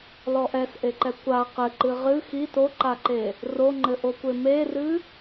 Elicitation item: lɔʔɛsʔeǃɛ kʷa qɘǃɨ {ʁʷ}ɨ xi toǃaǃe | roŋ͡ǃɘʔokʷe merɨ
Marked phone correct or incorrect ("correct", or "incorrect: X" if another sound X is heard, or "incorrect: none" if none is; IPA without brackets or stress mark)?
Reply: incorrect: ʁ